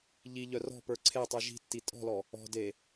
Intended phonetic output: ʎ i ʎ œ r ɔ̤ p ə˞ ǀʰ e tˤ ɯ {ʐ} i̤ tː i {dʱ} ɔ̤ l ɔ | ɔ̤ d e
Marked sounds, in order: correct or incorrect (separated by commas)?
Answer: incorrect, incorrect